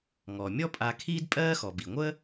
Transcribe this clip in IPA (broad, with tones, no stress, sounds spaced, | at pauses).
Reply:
ŋ ɔ˩ mʲ ɔ˥ pʼ a˧ kʰ iː˥ d pʼ ɜː˥ x ɔ˩ b i˩ ŋʷ əː˥